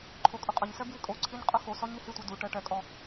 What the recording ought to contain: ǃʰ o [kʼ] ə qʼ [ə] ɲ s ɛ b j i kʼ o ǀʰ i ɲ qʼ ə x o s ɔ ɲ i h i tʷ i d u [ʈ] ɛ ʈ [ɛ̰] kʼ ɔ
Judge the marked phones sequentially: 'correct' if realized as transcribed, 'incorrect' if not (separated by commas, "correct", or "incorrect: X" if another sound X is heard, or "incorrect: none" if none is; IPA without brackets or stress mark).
correct, correct, correct, incorrect: ɛ